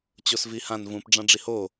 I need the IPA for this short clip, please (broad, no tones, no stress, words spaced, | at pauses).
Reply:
t͡ɕosvihãn vũp ɖ͡ʐãɖ͡ʐiho